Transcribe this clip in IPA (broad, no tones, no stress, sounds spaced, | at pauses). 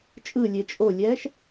t͡ʃʼ ɯ lʲ e t͡ʃʼ o lʲ ɛ ʃ